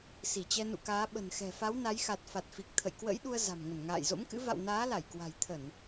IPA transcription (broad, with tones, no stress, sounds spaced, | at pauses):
s i˧˩ t͡ɕ ɛ˧ n ṵ˧˨ k aː˨˦ ɓ ə̤˨˩ n x ɛ̤˨˩ f a˨˦ w n a˨˦ j x a˨˩ t̚ f a˨˩ t̚ f i˨˩ k̚ t̪ʰ ə̰˧˨ j k w ə̰˧˥ j ɗ u˧ ə̯ z a̤˨˩ m ŋ ə˧˩ n ŋ a̰ː˧˨ j z o̰˧˥ m k ɨ̰˧˥ v a̰˧˨ w n aː˨˦ l a˧˩ j k w a̤˨˩ j t̪ʰ ə˧˩˨ n